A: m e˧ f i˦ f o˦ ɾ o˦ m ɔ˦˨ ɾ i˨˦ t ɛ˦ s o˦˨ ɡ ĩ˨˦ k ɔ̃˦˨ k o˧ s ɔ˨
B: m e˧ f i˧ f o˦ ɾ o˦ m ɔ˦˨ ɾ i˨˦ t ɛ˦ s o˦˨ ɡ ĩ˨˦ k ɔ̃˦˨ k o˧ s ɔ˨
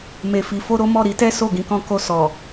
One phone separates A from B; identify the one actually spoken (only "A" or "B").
B